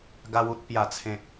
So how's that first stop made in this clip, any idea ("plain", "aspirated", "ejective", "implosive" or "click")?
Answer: plain